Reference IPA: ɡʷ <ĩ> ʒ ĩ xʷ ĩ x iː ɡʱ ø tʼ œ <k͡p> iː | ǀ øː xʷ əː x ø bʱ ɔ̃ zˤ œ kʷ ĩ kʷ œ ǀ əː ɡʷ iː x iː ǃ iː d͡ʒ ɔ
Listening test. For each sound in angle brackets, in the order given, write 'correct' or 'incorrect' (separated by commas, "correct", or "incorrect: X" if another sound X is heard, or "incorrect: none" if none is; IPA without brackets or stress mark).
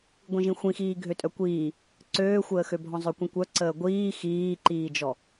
correct, incorrect: kʷ